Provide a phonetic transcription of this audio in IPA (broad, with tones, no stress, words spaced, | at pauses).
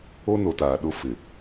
o˦no˨taː˨ɗʊ˦˨ fɪ˨